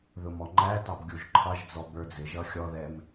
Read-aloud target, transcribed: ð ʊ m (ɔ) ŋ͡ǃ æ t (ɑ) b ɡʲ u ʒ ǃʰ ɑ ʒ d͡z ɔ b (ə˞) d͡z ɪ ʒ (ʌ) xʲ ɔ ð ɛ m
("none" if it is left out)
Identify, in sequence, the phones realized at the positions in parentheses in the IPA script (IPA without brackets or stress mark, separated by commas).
ɔ, ɑ, ə˞, ʌ